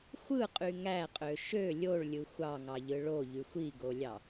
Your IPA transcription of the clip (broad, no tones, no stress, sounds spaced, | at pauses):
xʷ ɯ qʼ y ŋ æ qʼ ø ʃ ø lʲ o ɭ lʲ ɯ xʷ ɑ ŋ ɑ ʎ ɯ ɭ o ʎ y xʷ i ɡ o lʲ ɑ